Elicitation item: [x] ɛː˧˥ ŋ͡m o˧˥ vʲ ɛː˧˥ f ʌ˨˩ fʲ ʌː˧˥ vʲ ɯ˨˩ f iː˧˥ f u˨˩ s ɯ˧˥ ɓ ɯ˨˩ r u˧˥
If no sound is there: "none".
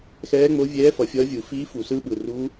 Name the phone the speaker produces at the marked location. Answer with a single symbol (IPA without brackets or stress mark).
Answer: x